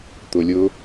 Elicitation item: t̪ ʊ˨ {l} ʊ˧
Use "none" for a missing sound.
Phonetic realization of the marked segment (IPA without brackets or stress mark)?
lʲ